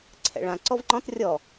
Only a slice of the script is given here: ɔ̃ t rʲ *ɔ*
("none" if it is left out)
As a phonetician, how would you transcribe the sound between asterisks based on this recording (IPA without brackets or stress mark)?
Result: ɔ